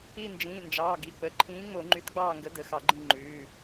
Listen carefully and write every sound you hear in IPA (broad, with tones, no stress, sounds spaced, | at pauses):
i˦˨ n d͡ʒ ĩː˩˧˩ n d͡ʒ ɑː˩˧˩ ɡ i˩˧˩ k͡p ə˩˧˩ ǃʰ ĩː˨˥ ŋ͡m o˧˩˧ ŋ͡ǃ y˨˥ t ɡ͡b ɑː˦˨ ŋ ɡ ə˨˥ d ə˩˧˩ x ɑ˧˩˧ ɡ͡ǃ ĩ˦˨ ŋ͡ǃ ʉː˩˧˩